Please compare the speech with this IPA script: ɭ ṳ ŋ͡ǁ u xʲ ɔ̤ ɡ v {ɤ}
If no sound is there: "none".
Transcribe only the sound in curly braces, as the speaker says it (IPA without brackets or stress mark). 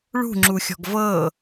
ɤ